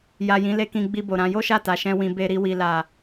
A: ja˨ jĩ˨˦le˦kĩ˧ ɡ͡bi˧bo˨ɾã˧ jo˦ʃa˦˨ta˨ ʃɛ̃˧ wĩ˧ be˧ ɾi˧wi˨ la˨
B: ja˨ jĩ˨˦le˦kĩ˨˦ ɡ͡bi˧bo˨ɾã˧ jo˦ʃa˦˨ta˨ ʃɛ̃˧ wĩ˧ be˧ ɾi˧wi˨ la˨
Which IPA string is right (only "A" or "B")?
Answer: A